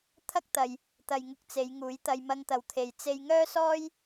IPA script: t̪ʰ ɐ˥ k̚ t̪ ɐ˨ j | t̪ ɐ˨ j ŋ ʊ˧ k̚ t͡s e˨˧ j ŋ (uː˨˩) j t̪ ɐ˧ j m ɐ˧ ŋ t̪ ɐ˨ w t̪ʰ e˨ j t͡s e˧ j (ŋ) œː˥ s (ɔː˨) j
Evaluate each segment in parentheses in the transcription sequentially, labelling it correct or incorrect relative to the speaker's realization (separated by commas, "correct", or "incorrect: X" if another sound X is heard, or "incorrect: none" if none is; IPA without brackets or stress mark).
incorrect: uː˨˥, correct, incorrect: ɔː˥